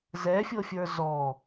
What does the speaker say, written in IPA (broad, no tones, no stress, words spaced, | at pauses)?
zɛfʲɤfʲə˞ zɔ